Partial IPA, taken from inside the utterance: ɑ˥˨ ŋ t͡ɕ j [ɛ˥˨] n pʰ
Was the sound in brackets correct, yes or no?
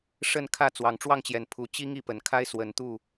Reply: no